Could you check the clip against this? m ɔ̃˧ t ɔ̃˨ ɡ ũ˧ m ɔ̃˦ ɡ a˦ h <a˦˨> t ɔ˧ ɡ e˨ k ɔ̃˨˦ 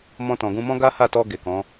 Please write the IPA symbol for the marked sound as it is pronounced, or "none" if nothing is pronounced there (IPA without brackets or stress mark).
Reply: a˦˨